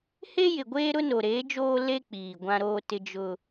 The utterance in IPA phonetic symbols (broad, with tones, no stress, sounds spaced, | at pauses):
h e˦ j ɪ˨ ɡʷ eː˦ ɾ ʊ˦ n o˨ ɾ eː˨˦ d͡ʒ oː˦ l e˦ k͡p iː˨ ɡʷ ã˦ ɾ oː˦ t ɪ˦ d͡ʒ ʊ˦